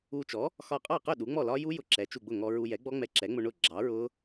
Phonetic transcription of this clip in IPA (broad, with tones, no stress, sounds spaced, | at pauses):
u˧ t͡ʃ ɔ˩˥ | x ɒ˧˩ qʼ ɑ˥˩ q ʊ˥˩ ɗ u˩˥ ŋ͡m ɔ˥˩ l ɒ˦˥ j u˦˥ j ʊ˧ ǁ ɛ˩˥ t͡ʃ u˧˩ ɡ͡b ʊ˥˩ ŋ ɔ˧ ɹ u˧ j ɛ˩˥ ɡ͡b ɔ˦˥ ŋ͡m ɛ˧ ǁ ɛ˩˥ ŋ͡m ʊ˧ ɳ ʊ˥˩ ɡ͡ǁ ɑ˩˥ ɹ ʊ˦˥